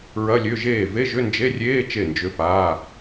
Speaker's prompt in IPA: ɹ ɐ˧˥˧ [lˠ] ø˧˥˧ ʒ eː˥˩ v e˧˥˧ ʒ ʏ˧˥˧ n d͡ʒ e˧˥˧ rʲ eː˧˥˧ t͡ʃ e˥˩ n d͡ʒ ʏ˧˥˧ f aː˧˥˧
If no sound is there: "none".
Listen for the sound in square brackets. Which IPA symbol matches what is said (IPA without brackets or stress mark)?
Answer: lʲ